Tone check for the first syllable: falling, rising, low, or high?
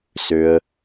low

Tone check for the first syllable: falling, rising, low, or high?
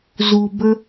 low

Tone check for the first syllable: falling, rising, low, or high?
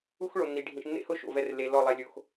high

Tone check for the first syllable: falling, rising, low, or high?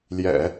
low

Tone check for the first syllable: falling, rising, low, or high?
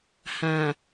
low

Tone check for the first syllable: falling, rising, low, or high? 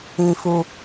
low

